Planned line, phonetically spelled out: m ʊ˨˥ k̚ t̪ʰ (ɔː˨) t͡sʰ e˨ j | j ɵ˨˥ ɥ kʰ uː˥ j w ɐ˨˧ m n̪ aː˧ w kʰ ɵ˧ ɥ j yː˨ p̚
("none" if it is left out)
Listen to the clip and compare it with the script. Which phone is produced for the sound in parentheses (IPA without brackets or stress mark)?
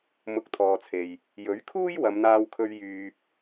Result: ɔː˨